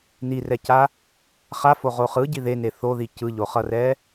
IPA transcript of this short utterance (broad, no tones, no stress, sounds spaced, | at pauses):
n i r ɛ c a | χ a f o ʁ o χ ɯ ɟ i ð e n e θ o ð i c ɯ ʎ o χ ʌ r ɛ